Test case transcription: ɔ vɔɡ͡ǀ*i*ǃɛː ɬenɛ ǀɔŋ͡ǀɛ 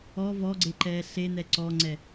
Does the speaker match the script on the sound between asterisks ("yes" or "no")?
no